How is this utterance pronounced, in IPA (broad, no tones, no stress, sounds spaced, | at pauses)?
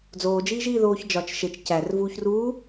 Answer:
d͡z oː d͡ʒ iː ʒ iː ð oː ç d͡ʒ ɒ t͡ʃ ʃ e t͡ʃ c æ r v uː ç r uː